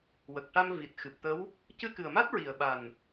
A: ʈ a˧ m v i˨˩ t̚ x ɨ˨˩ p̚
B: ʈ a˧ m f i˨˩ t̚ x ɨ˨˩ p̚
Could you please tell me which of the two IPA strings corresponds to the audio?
A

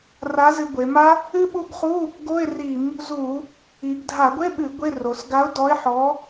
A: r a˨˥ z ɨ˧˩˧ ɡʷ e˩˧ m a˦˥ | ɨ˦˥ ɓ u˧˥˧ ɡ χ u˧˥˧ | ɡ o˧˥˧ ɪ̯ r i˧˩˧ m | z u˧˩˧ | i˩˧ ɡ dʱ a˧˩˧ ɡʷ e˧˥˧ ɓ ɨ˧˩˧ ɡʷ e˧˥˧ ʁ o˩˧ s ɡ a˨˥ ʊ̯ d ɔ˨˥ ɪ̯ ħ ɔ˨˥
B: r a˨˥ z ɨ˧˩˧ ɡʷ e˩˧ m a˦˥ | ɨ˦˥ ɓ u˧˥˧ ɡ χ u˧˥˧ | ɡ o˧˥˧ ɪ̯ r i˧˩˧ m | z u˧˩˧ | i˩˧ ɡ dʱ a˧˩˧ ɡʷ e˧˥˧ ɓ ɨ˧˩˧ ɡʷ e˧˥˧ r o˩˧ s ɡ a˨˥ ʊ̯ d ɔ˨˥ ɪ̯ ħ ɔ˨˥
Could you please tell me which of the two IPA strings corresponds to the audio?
B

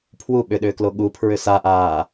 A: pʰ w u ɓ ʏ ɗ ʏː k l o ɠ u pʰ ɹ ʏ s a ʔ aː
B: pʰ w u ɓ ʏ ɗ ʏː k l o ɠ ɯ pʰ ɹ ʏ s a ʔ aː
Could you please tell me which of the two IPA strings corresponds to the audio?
A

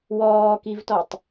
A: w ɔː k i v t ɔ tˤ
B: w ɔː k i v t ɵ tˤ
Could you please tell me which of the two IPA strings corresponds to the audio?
A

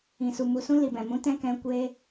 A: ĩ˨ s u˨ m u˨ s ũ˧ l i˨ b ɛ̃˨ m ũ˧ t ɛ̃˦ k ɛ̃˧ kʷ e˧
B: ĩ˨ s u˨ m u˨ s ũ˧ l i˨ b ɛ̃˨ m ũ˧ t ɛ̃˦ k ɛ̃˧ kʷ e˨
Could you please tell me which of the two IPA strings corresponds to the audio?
A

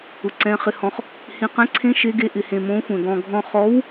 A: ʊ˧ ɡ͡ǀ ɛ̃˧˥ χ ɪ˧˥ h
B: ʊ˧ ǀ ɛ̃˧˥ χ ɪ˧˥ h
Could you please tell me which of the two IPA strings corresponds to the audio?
B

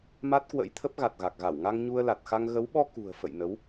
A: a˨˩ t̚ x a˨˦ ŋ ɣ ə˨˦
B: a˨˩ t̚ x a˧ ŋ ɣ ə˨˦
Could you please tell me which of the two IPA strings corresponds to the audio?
B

